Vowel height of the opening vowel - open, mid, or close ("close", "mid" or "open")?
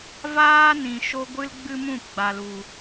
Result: open